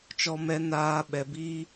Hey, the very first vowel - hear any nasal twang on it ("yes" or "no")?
no